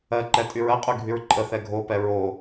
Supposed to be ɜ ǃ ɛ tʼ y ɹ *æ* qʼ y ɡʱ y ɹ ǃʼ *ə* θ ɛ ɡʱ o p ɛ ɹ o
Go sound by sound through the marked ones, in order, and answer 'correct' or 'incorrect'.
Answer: incorrect: ɜ, correct

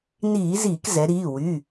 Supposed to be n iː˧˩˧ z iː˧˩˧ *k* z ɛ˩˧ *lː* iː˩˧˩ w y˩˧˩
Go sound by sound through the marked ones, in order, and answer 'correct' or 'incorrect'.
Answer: correct, incorrect: ɾ

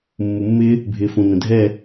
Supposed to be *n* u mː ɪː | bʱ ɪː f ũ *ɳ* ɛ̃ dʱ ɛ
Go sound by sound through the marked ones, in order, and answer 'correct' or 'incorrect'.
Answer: incorrect: mː, incorrect: n

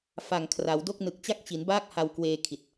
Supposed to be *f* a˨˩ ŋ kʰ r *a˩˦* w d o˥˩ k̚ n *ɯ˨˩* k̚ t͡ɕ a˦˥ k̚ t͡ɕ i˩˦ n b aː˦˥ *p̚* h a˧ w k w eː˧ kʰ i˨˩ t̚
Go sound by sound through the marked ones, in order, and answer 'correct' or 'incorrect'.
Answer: correct, correct, correct, incorrect: k̚

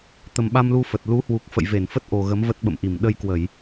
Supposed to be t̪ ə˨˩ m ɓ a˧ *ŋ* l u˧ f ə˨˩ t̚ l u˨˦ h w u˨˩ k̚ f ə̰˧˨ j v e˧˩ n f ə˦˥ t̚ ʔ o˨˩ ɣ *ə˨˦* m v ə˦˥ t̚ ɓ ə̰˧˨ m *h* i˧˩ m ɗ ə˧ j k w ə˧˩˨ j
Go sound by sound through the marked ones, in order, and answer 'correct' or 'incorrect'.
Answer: incorrect: m, correct, incorrect: ʔ

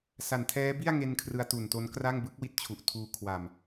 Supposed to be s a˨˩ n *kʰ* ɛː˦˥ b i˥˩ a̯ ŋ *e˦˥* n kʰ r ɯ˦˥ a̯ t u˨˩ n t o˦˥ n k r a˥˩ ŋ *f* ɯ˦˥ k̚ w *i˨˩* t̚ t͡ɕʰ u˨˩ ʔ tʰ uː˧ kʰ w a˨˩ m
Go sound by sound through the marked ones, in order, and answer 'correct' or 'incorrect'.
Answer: incorrect: tʰ, incorrect: e˧, incorrect: b, incorrect: i˦˥

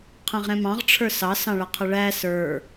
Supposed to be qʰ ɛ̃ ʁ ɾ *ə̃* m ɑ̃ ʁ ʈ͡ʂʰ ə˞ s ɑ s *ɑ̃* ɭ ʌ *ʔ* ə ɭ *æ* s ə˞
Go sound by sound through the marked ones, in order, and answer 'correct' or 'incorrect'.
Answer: incorrect: ɛ̃, correct, incorrect: qʰ, correct

